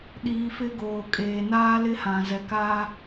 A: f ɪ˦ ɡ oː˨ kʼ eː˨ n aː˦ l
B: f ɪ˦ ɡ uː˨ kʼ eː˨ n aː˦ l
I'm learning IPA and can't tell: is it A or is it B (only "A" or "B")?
A